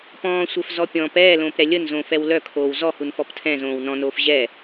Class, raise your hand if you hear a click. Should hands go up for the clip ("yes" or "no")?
no